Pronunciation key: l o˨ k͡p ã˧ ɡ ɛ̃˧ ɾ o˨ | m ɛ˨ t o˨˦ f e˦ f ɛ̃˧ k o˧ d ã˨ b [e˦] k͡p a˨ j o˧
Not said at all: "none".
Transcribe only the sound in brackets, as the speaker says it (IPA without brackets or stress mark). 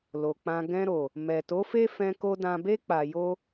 e˧